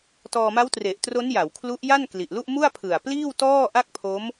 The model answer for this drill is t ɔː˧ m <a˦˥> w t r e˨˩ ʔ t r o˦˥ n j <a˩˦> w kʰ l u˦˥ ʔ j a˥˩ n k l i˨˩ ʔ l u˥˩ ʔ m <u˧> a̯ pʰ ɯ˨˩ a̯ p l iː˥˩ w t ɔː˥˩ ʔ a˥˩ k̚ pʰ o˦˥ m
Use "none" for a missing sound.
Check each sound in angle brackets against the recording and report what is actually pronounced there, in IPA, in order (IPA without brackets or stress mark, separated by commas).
a˦˥, a˩˦, u˥˩